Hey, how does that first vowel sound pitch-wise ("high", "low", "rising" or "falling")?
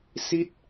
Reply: falling